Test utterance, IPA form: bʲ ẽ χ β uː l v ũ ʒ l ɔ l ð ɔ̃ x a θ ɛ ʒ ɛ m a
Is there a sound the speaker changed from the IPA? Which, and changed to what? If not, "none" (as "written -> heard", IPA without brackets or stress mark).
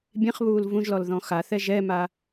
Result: none